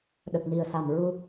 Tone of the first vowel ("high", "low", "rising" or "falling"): low